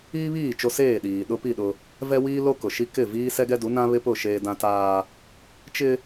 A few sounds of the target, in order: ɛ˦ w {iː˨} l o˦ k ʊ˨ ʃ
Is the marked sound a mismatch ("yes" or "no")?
yes